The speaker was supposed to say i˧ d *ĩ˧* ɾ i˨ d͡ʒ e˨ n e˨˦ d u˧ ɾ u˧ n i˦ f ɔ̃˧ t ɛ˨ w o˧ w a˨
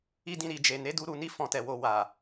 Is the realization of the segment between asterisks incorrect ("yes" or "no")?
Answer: no